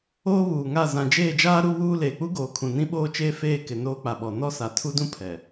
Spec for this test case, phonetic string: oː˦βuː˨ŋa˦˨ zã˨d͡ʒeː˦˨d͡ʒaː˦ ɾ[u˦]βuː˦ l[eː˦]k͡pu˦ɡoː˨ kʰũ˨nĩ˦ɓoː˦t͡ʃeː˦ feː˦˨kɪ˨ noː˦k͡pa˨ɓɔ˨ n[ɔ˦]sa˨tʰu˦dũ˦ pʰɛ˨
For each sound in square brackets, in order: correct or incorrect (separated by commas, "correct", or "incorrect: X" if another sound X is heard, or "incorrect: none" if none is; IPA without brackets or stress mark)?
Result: correct, incorrect: eː˨, correct